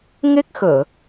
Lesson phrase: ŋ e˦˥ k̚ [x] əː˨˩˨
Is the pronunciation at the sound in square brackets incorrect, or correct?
correct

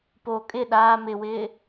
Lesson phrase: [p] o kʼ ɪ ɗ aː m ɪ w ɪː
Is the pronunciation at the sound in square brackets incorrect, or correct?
correct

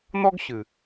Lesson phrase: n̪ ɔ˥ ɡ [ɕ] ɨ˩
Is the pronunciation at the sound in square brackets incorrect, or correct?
correct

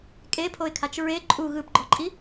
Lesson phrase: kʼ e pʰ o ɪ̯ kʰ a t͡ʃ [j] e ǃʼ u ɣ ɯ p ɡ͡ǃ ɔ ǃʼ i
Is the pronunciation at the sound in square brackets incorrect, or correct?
incorrect: ɹ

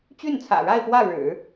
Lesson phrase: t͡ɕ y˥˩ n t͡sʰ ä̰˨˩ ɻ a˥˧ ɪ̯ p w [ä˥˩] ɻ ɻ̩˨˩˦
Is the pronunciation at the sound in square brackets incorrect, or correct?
correct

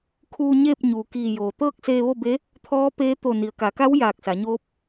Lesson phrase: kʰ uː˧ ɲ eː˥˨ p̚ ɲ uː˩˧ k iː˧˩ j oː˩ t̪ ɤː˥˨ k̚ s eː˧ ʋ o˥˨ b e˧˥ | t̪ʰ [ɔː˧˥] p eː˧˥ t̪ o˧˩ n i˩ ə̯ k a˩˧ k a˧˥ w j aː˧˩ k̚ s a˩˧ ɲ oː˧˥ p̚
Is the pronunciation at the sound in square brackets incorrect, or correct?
correct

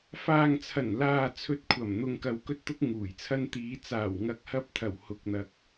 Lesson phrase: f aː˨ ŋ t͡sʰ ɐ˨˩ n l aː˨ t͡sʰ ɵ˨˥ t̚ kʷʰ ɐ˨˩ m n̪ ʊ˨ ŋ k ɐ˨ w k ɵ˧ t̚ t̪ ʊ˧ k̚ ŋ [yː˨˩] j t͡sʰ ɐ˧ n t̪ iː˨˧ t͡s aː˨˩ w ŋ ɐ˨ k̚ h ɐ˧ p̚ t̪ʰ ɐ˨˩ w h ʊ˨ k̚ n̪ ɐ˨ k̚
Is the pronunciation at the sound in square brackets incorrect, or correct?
incorrect: uː˨˩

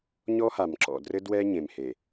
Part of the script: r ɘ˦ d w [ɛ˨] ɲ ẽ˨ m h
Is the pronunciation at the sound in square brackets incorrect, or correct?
incorrect: ɛ˦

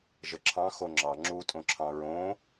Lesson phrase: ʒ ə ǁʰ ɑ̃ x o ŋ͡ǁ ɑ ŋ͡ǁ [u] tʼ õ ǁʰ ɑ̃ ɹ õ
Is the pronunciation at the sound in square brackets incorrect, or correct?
correct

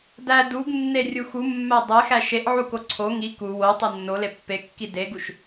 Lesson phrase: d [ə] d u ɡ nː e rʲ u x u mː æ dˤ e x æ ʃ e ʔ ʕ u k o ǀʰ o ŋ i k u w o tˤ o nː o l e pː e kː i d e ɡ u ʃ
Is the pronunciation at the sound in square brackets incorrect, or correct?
incorrect: æ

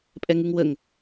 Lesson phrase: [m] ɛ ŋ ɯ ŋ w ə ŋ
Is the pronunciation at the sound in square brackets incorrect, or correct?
incorrect: pʼ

